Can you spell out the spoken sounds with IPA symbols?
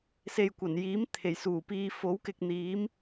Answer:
s e˨ j kʷ ɐ˨˩ n j iː˨˥ m t̪ʰ e˨˩ j s uː˨˩ p iː˧ f o˨˥ w k ɪ˧ k̚ n̪ iː˨˥ m

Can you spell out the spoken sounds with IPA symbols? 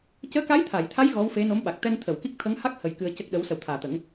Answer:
c əː˧˥ k a˧˥ j t̪ʰ a˨˩˨ j t̪ʰ a˧˥ j ɣ ɔ˧˥ w f e˧˥ n o˧˥ m ɓ a˨˩ k̚ t̪ ɛ˧ n t̪ʰ ə˨˩˨ w k i˦˥ k̚ t̪ʰ ə˧˥ ŋ h a˦˥ k̚ h ə˧ j k ɨ˧ ə̯ c ə˦˥ k̚ ɗ ə˧˥ w s ə˨˩ w t̪ʰ aː˨˩ t̪ ə˨˩˦ ŋ

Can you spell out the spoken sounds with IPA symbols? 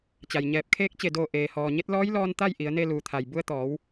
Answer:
t͡ɕ a˩ j ɲ ɛː˧˩ p̚ kʰ eː˧˥ k̚ t͡ɕ e˧˩ d oː˧˩ ʔ eː˩ h ɔː˩ ɲ e˧˥ t̚ l ɔː˧˥ j l ɔː˧ n t̪ a˥˨ j ʔ i˩˧ ə̯ n e˧ l uː˩ t̪ʰ a˩ j b u˧ ə̯ t̪ ɔː˩˧ w

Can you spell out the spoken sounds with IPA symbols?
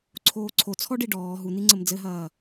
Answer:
ǀʰ oː ǀʰ o t͡sʰ ɔ ɖ i ɖ ɔː ɦ u n̪ i ŋ͡ǀ ɘ m d͡z ɘ ɦ ɐː

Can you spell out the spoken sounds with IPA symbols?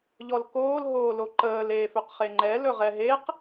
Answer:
ʎ ɔ l k oː l ɦ oː l o ǃ əː l eː f ø q χ e ŋ͡ǃ ɛ l ɵ ʁ ɛ ɦ e q

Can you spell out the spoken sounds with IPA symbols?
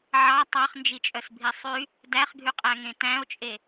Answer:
ʕ ɑ tˤ ɑ χ n d͡ʒ i t͡ʃʼ œ s bʱ i sˤ y | d æ χ ɡʱ y qʼ æ ŋ ẽ t æ̃ o̯ t͡ʃʼ e

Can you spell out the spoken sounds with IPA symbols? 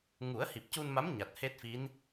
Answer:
ŋ u˨˩˦ ə̯ h i˨˩ p̚ c u˧ n m a˧˥ m ɲ a˨˩ t̚ h e˦˥ t̚ f i˧˥ n

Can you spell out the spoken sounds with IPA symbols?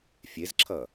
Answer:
fʲ e z ǁʰ ʌ

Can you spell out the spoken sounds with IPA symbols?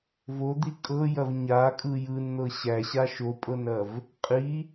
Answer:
v o d̪ i kʼ ɤ j ɐ v ɲ a kʼ ɯ j ɯ n n̪ ɤ ɕ æ ɕ a ʃ o pʼ ɤ n ɐ v | qʼ i

